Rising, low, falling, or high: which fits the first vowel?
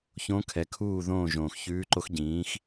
rising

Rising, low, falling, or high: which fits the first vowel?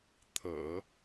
low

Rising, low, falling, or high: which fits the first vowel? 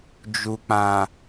low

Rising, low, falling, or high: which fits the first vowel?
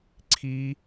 high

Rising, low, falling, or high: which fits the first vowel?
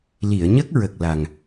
low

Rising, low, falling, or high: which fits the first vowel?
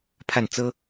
falling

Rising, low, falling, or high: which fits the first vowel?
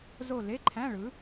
falling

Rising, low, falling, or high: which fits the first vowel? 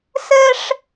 high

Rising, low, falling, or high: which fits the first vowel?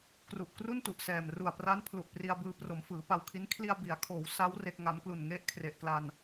low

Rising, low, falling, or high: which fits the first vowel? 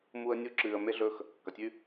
high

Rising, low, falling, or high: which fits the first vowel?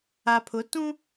low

